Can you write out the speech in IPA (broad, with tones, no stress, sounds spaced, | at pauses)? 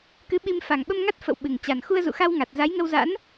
k ɨ˨˦ ɓ i˧ m f a˨˩ ŋ ɓ ə˧ m ŋ a˦˥ t̚ f ə̰˧˨ w ɓ ɨ˨˩ ŋ t͡ɕ a˨˩ n x u˧ ə̯ z ṵ˧˨ x a˧ w ŋ a˨˩ t̚ z a˨˦ j ŋ ə˧ w z a̰˧˥ n